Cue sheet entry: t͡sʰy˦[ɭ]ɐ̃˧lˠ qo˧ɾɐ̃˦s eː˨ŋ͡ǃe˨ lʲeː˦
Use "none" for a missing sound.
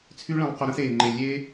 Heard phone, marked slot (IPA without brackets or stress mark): ɭ